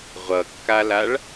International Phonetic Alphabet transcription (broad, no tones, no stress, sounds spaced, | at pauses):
ʁʷ ʌ kː a l a ɭ